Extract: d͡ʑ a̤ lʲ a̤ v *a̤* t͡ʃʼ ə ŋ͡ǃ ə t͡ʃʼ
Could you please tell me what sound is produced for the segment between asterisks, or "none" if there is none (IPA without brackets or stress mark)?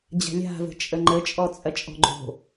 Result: ə̤